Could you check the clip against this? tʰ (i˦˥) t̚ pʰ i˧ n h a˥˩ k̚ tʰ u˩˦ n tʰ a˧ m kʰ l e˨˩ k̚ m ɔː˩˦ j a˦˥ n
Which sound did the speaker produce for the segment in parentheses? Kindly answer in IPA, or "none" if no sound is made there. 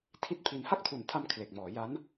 i˥˩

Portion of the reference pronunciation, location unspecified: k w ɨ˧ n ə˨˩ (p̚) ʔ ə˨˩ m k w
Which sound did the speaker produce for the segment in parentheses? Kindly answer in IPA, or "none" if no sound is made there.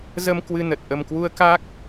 t̚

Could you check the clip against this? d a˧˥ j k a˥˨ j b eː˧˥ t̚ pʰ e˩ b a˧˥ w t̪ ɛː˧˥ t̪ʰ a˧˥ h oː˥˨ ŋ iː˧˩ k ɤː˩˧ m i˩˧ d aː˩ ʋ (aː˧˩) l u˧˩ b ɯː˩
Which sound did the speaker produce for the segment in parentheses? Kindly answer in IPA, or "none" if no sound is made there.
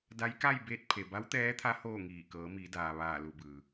aː˧˩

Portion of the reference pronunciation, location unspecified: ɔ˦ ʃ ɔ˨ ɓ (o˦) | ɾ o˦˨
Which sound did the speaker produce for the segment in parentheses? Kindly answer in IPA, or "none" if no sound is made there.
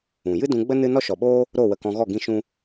oː˦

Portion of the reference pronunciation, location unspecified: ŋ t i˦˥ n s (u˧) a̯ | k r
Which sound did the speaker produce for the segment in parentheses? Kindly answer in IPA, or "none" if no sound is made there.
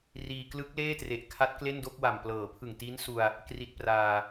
u˧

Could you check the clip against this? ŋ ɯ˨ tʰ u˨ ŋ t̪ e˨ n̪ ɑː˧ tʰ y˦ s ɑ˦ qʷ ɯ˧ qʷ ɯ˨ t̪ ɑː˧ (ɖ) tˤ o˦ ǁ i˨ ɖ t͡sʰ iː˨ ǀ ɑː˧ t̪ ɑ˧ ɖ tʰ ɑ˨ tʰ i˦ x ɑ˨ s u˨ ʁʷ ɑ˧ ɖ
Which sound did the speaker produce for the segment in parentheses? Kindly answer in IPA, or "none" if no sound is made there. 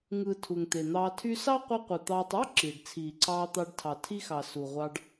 none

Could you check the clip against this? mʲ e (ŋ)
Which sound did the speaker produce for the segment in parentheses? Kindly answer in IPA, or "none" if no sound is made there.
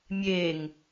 ŋ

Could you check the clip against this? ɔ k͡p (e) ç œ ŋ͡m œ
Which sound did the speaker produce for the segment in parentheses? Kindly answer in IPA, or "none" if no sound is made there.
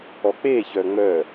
e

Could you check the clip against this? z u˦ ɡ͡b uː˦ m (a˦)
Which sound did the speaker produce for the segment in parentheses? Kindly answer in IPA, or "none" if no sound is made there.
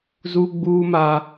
a˦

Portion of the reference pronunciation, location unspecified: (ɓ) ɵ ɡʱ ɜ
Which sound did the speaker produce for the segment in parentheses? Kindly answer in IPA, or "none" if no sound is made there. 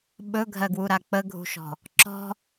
ɓ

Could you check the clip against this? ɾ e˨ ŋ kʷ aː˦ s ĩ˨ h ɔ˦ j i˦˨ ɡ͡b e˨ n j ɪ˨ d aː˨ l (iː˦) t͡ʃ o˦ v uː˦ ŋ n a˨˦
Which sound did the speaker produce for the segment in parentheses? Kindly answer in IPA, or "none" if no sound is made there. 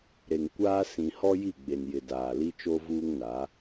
i˦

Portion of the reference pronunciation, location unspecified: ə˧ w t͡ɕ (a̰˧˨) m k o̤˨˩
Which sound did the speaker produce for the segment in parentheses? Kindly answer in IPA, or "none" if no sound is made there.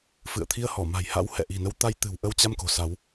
a˧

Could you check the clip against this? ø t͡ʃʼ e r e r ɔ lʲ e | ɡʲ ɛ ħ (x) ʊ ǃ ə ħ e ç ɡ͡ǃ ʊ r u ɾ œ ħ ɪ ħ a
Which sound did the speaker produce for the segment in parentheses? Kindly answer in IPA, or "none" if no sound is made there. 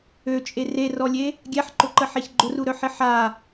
ǃ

